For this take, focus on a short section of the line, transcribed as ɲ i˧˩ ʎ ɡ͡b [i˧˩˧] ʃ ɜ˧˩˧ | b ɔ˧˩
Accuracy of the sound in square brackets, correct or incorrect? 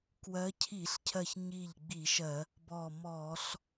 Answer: correct